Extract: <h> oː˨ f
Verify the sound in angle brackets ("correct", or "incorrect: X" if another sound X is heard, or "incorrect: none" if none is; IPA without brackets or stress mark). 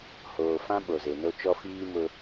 correct